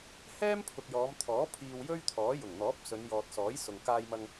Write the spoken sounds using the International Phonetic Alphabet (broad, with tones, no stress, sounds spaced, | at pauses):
h ɛː˥ m pʰ ʊ˨ k̚ j ɔː˨˧ m t̪ʰ ɔː˨˥ pʰ iː˧ w j ɵ˥ ɥ t̪ʰ ɔː˨˥ j ʊ˨˩ ŋ n̪ ɔː˨˥ p̚ s ɵ˨˧ n j ɔː˨ t̚ s ɔː˨˥ j s ʊ˨ ŋ k aː˧ j m ɐ˧ ŋ